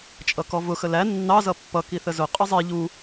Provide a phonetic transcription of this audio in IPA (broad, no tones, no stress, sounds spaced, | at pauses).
t͡ʃʼ ʌ k ɔ v ʊ x ə l æ nː ɑ z ʌ pː ʌ k i θ ə z ʊ qʼ ə zˤ i ʎ u